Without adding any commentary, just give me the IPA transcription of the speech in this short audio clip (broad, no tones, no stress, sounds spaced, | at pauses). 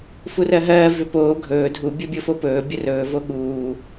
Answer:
f u r ɜ ɦ ɜː v ʏ p oː ɡʱ ɵː dʱ u bʲ o bʲ o f o p ɵː bʲ ə r ɵː v o ɠ uː